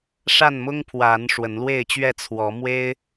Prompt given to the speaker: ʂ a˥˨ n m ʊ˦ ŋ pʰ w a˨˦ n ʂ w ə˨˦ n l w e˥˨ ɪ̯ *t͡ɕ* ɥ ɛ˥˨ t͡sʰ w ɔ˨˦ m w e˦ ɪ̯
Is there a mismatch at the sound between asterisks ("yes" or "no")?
no